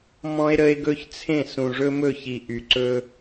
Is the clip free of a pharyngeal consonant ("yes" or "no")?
yes